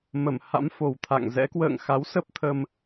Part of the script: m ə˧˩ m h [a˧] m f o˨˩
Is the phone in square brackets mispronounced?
yes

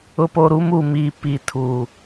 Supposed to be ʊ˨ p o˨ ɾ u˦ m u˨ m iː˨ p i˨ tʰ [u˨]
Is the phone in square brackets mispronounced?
no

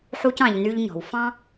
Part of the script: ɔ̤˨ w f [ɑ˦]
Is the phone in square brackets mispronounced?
yes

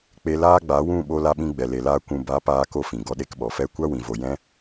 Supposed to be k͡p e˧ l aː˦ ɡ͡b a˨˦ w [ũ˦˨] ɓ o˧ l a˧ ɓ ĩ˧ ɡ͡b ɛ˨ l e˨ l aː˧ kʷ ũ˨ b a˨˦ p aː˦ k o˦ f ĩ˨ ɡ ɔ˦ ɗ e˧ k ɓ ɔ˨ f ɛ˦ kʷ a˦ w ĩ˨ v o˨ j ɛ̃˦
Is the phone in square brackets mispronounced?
no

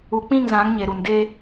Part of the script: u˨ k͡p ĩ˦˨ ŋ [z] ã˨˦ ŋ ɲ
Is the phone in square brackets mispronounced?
no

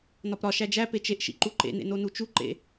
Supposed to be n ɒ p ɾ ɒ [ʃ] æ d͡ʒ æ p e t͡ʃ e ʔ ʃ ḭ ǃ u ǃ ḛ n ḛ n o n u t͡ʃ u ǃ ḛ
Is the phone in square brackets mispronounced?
no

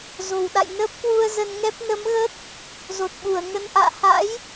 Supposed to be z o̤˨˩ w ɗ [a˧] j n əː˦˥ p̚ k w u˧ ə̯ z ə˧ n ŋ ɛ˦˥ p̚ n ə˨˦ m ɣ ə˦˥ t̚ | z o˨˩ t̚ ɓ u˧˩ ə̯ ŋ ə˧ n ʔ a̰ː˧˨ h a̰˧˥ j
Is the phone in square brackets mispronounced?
yes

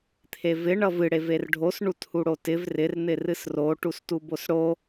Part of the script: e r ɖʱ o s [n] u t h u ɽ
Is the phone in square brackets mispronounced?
yes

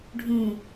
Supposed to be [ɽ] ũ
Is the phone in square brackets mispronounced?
yes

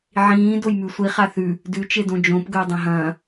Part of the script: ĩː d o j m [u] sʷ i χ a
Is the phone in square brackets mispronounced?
yes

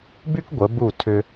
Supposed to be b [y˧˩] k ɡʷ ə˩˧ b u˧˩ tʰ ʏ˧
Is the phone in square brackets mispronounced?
yes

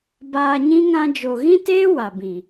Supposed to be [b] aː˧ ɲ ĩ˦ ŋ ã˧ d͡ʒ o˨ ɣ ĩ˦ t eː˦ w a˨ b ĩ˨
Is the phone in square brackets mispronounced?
no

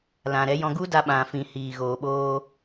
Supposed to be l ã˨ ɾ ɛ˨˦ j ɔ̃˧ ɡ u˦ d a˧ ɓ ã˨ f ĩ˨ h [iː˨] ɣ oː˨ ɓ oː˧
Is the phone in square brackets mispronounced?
no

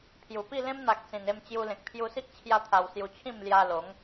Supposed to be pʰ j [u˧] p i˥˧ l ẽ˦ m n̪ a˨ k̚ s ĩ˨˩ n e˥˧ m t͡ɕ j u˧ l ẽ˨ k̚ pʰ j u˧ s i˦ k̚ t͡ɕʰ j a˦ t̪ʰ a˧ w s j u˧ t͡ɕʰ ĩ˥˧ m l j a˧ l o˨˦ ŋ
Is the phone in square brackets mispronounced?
yes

